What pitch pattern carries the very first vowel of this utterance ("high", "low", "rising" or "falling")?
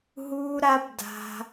high